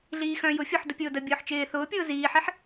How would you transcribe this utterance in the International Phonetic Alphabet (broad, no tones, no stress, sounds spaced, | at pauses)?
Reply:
ɮ iː x œ̃ j ʊ fʲ ʊ ħ d ʊ pʲ ʊː d ə bʲ ʊː ħ t͡ʃ ɪː θ ʊː pʲ ʊː z iː ħ i ħ